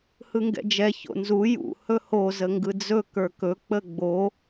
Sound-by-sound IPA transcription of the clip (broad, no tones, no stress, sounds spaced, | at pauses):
h ɯ ŋ ɡ ɛ̰ d͡ʒ ɛ ç o̰ n z u j ṵ h ɵ h o z ə ŋ ɡ ɯ d͡z ɵ k ə˞ k ɵ k͡p ə ɡ͡b o